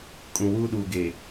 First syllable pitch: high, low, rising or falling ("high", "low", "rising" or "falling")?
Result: low